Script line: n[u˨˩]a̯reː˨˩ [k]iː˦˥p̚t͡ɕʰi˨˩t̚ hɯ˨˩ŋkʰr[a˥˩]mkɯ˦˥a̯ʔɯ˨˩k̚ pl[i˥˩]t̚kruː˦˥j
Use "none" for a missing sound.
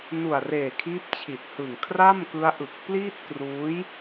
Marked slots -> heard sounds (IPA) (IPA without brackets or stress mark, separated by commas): u˨˩, kʰ, a˥˩, i˥˩